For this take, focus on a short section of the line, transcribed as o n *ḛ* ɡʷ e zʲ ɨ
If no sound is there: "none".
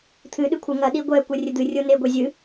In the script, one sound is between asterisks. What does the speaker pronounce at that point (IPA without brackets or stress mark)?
e